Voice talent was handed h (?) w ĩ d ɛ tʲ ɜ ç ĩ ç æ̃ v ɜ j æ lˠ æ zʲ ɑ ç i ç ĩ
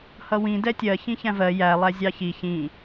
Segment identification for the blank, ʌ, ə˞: ʌ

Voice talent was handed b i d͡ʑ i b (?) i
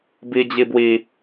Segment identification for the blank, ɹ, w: w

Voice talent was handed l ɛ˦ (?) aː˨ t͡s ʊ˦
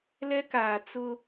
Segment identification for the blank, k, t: k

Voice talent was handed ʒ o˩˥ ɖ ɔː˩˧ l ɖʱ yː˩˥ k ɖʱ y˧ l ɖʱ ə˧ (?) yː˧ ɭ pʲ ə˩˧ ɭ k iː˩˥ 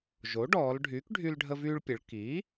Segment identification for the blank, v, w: v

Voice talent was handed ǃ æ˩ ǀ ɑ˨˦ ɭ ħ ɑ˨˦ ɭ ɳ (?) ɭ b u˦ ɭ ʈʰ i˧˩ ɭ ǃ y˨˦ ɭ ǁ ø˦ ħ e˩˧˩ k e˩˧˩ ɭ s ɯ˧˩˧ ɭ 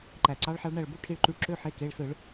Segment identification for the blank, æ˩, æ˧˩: æ˧˩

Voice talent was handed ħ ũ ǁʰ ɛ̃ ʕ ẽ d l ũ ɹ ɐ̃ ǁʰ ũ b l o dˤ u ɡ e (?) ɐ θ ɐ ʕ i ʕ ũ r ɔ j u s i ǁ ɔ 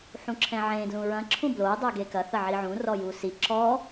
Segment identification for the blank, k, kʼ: k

